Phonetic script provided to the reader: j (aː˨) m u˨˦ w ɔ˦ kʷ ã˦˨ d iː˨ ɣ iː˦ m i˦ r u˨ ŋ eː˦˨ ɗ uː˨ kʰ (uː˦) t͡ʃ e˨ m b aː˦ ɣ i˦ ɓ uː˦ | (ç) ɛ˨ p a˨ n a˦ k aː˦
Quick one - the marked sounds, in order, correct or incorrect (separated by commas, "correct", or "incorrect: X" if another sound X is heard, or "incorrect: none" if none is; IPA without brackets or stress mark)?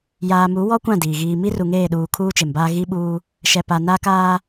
correct, correct, incorrect: ʃ